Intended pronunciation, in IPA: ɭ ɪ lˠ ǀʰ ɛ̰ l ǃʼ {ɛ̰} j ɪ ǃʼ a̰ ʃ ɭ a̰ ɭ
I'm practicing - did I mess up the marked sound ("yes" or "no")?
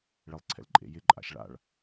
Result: yes